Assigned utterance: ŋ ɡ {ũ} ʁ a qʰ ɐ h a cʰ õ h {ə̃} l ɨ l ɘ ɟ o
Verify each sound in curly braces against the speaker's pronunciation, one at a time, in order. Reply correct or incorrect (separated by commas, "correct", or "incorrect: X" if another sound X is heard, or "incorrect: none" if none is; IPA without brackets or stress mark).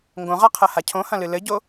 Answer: incorrect: õ, incorrect: ɐ̃